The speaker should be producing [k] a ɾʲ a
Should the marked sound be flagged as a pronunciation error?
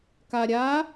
no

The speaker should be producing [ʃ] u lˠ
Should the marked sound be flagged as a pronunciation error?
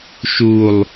no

